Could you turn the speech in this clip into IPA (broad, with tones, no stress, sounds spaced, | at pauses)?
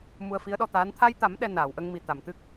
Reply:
m u˧ ə̯ f i˧˥ ə̯ ɗ ɔ˧ t̪ aː˧˥ n t̪ʰ a˧ j t̪ a˨˩˦ m ɗ ɛ˧ n aː˨˩˨ w ʔ ə˧ ŋ m i˨˩ t̪ a˨˩˨ m t̪ ɨ˦˥ k̚